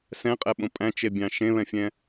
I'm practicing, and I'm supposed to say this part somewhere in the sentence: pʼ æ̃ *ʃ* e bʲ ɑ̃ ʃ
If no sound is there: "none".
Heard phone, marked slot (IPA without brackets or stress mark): t͡ʃ